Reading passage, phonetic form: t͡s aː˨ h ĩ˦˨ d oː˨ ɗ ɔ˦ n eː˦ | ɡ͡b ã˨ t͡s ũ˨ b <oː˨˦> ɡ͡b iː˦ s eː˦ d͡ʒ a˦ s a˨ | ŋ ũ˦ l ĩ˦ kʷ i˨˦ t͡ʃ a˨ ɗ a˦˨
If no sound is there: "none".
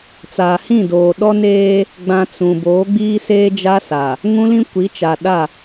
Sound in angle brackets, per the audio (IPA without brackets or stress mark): oː˨˦